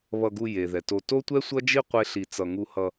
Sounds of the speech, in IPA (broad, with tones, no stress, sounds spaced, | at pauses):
β ʌ˧ ɡ u˧ j e˨ ð ɛ˨ t o˧ t o˦ tʷ ɛ˦ sʷ ʌ˦ d͡ʒ i˦ qʷ e˦ ɬ i˧ t͡s ʌ˧ ŋ u˧ h ʌ˧